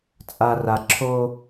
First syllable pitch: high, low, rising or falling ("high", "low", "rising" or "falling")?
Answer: low